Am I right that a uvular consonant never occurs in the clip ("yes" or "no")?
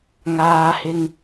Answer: yes